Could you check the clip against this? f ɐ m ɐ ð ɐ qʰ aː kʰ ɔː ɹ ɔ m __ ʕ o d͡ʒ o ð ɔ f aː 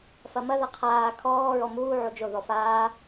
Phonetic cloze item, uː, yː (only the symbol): uː